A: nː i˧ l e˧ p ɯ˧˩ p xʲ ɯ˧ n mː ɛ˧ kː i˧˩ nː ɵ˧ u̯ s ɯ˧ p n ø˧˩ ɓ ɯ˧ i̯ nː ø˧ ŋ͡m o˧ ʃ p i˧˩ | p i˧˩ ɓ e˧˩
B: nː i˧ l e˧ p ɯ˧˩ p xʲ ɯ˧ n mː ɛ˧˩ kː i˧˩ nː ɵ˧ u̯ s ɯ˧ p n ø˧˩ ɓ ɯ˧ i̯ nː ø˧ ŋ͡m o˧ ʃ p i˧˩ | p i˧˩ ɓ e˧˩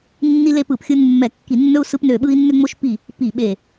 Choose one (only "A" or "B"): B